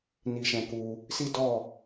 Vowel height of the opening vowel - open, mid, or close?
close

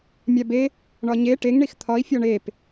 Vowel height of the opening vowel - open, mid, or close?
open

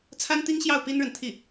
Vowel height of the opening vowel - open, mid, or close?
open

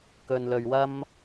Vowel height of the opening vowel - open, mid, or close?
mid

